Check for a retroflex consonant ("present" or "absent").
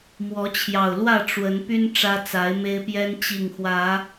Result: present